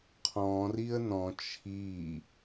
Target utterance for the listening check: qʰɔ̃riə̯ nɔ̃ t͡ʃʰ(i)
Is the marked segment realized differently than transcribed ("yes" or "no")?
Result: no